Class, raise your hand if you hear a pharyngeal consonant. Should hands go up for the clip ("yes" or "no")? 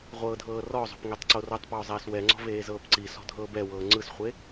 no